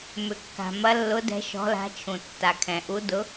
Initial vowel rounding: rounded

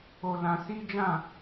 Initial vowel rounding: rounded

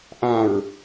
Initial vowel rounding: unrounded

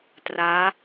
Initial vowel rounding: unrounded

